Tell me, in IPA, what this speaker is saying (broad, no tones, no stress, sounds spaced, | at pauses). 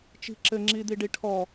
t͡ʃ i̤ ǁ ɘ ŋ͡ǁ i d̪ i ɖ i ʈʰ ɔ